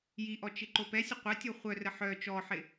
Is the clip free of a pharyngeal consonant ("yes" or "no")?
no